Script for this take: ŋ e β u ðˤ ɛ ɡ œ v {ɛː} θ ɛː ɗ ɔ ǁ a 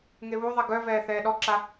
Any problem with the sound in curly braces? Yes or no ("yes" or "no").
no